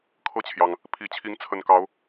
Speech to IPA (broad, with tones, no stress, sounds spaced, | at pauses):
kʰ ɤ˥˨ t͡ɕʰ j ɑ˩ ŋ | pʰ i˨˩ t͡ɕʰ i˨˦ ŋ t͡sʰ ə˨˩ n k ɑ˨˦ ʊ̯